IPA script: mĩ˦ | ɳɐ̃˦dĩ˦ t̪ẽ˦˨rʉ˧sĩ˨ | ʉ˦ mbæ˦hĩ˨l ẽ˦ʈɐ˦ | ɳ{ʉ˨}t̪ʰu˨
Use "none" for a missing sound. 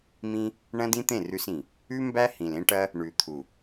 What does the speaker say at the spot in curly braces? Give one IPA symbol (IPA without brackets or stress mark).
ʉ˨